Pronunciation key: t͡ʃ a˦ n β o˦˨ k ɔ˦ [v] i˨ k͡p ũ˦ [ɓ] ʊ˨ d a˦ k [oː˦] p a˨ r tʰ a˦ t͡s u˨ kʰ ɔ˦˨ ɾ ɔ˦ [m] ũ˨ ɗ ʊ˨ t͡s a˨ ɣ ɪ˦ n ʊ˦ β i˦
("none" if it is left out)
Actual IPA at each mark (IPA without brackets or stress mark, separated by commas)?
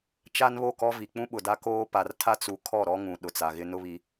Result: v, ɓ, oː˦, ŋ